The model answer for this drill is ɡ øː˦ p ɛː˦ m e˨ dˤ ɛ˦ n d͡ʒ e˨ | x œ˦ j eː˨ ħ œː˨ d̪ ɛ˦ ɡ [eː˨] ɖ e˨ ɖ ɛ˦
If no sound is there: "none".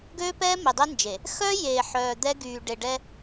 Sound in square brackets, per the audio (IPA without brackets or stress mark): yː˨